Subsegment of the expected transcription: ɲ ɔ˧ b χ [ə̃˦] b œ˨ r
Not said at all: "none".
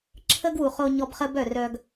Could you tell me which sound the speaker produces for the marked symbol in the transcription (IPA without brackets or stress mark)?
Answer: ə˦